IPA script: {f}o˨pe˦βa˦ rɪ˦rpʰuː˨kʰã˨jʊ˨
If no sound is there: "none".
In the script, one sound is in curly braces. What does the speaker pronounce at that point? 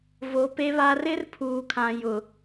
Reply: v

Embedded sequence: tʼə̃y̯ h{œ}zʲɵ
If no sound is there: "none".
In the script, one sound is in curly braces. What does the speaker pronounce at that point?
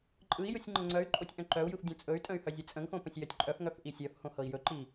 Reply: œ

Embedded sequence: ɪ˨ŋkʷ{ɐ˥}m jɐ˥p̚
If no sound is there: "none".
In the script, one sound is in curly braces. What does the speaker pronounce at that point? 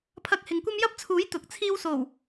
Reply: ɐ˥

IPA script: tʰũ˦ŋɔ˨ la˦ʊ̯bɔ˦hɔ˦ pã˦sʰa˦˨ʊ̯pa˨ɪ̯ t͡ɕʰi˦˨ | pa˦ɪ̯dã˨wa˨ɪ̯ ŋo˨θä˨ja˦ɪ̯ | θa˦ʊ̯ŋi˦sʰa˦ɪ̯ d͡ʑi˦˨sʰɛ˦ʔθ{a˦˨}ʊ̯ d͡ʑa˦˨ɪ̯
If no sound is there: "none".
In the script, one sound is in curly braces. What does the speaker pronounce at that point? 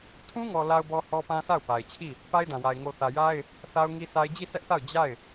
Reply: a˦˨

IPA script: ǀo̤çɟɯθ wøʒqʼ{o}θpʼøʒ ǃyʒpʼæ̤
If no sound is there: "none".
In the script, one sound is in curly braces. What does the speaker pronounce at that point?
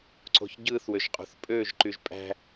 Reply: o̤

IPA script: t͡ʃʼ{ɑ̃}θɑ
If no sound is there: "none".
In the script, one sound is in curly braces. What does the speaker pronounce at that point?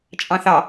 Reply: ɑ̃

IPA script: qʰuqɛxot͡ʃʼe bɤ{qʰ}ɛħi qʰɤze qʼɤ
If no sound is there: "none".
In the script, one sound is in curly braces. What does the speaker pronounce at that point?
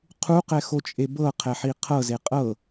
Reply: qʰ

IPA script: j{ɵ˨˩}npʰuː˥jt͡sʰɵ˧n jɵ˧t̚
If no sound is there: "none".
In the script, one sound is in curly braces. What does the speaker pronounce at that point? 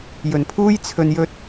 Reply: ɵ˨˩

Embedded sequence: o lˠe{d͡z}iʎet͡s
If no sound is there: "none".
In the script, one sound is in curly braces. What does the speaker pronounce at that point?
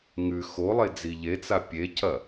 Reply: d͡z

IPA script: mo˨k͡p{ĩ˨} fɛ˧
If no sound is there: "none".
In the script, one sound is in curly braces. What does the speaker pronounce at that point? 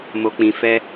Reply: ĩ˨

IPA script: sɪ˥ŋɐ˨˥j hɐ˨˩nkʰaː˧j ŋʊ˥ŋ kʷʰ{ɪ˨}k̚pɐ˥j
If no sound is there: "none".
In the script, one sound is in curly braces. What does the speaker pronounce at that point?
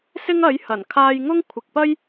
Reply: ɪ˨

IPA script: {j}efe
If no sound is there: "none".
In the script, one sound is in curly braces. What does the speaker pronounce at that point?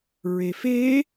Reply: ɹ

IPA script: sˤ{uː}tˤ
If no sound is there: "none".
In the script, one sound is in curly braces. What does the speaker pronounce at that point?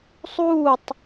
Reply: uː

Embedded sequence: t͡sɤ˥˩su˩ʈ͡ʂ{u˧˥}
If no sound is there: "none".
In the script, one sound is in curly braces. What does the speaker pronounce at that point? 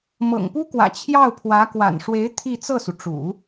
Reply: ṵ˨˩˦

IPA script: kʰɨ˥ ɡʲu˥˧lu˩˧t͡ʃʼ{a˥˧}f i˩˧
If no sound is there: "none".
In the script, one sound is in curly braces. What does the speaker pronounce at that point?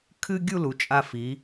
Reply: a˧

